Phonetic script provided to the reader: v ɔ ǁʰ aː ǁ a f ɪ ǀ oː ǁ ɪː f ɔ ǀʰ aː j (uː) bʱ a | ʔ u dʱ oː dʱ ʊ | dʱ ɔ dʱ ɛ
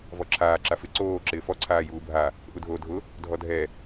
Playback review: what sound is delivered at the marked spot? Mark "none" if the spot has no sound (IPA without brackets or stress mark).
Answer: uː